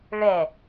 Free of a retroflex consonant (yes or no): no